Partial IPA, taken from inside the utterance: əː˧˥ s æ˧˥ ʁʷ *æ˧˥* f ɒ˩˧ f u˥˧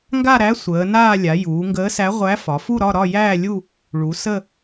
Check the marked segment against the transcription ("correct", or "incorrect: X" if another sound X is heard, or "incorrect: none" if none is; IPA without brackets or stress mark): correct